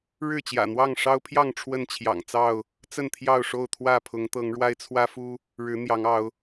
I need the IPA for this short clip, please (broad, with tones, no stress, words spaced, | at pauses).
ɻɻ̩˥˨t͡ɕjä̰˨˩n̪wɑ˥˨ŋ ʂɑ˦ʊ̯pʰjɑ˥˨ŋ ʈ͡ʂʰwə˥˨nt͡ɕʰjɑ̰˨˩ŋt͡sɑ˥˨ʊ̯ | t͡sə˥˨nt̪ʰjɑ˥˨ʊ̯ʂo˥˨ʊ̯ t̪ʰwä˥˨pʰʊ˨˦ŋt̪ɤ˨˦ŋɻwa˦ɪ̯ t͡sʰwä˦fu˦ | ɻɻ̩˨˦n̪jɑ˨˦ŋɑ˨˦ʊ̯